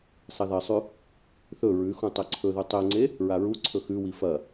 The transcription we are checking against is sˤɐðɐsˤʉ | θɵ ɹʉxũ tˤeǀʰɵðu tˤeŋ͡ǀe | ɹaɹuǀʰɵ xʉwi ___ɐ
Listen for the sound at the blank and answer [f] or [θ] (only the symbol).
f